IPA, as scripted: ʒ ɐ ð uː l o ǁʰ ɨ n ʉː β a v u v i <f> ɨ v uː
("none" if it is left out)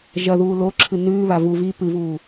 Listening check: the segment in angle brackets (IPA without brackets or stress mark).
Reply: p